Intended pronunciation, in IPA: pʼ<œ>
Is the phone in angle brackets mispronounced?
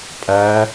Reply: yes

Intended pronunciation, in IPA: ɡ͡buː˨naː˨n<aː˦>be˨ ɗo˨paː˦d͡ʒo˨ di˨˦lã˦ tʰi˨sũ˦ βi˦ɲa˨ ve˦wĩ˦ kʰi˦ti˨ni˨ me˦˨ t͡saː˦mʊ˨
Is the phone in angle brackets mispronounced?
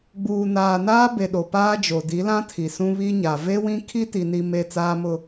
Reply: no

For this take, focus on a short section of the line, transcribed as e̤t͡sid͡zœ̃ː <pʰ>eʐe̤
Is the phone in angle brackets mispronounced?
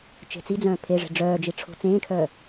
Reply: no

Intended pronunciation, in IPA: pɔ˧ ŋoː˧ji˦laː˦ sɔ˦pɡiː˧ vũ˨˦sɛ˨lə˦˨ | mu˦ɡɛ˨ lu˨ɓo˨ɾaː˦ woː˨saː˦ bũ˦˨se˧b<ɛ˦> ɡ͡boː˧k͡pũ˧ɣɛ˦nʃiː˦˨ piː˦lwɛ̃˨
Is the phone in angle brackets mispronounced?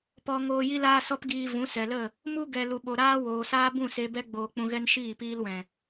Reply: no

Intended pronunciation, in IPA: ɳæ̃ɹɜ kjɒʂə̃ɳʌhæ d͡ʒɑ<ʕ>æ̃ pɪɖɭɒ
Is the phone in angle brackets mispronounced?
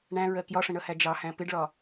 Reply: yes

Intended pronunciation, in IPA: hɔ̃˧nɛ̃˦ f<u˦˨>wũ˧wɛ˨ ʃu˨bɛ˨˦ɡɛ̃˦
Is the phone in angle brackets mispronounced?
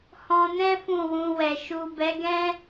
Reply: yes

